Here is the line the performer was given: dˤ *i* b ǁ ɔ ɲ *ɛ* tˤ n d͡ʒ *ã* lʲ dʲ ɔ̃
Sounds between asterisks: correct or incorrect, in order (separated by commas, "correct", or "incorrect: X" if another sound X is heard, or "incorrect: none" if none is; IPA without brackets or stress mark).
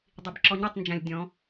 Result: correct, correct, correct